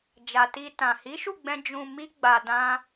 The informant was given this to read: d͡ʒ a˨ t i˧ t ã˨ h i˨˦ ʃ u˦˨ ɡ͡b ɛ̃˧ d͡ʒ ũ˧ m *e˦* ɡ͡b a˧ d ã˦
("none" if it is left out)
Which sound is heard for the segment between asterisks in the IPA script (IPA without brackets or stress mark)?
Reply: i˦